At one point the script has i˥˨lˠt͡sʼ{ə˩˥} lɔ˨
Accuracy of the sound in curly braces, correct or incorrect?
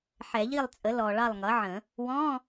correct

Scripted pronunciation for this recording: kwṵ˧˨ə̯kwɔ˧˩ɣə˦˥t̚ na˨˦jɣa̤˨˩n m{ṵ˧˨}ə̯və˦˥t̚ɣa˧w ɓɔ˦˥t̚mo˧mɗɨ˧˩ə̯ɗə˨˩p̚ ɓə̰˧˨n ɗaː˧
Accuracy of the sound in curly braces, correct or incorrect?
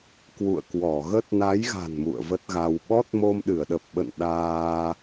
correct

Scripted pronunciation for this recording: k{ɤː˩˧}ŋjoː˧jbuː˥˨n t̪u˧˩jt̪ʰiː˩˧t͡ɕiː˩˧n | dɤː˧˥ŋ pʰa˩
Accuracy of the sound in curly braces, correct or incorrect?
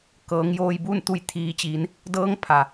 correct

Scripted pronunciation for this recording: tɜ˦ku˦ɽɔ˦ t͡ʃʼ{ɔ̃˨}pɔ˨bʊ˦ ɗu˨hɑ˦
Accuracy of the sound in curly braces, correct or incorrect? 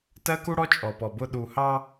incorrect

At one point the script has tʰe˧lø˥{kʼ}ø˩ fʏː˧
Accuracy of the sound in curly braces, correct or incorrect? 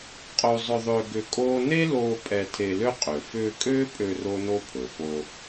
incorrect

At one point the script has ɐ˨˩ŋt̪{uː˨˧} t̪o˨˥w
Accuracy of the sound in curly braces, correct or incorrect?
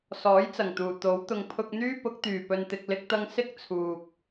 incorrect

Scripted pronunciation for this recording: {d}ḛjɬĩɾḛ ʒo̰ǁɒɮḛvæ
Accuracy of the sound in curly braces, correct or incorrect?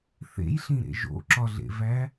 incorrect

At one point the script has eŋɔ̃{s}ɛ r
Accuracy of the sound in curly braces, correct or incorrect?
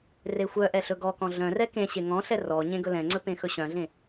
incorrect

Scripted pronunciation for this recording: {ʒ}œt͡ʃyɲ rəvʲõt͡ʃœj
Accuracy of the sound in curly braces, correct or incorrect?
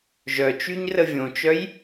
correct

